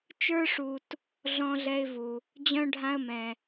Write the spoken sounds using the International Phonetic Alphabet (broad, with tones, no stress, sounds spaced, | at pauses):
t͡ʃ ə˞˦ ʂ u˨ t | ɮ ɔ̃˦ ɮ ɛ˦ ɪ̯ v u˨ | d͡ʑ œ̃˦ ɖʱ ã˦ ə̯ m ɛ̃˨